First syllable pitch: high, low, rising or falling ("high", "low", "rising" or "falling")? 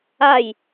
falling